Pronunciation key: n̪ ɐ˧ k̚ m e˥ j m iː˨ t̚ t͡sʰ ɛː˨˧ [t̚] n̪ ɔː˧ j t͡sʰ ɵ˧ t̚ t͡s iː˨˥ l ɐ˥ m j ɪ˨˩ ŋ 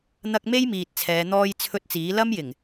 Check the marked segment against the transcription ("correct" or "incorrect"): incorrect